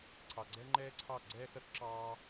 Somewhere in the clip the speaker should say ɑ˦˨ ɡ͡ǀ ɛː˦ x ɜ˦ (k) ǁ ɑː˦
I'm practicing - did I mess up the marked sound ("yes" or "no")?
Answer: no